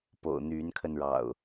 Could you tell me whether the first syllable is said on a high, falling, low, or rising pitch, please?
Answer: low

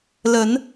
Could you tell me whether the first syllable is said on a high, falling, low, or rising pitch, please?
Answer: rising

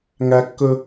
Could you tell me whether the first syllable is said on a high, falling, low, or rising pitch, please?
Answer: high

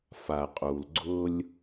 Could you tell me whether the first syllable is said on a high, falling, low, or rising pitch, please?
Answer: low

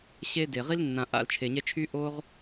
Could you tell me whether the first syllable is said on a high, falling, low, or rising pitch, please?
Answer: high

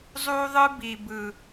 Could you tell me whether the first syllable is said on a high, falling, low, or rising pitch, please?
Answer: high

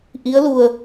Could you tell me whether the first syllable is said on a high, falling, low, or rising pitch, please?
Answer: rising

